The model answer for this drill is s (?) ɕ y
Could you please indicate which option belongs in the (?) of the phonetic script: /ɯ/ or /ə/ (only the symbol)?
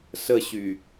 ə